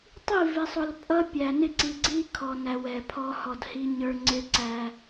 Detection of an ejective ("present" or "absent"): present